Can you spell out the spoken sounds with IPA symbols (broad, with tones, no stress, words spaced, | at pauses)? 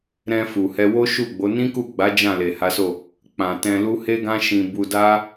ɾɛ̃˧ fu˨hɛ˧ wo˦ʃu˦˨ɡ͡bo˨˦ nĩ˦ku˦˨ɡ͡ba˨˦ d͡ʒã˦˨le˨ha˨˦so˦˨ | k͡pã˨ tɛ̃˧lu˦ he˦ɡã˦ʃĩ˧bu˧ da˦